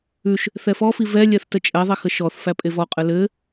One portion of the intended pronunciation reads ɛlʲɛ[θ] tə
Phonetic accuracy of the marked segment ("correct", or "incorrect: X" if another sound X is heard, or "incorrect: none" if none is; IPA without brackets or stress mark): correct